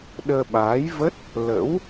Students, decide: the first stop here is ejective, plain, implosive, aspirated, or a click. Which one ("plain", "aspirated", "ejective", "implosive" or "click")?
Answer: implosive